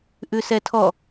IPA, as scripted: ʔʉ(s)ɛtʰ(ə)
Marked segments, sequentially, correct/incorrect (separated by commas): correct, incorrect